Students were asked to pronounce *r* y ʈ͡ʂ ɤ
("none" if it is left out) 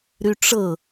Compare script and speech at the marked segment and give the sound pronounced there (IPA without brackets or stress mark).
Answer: ɾ